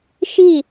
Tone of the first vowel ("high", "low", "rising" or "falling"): falling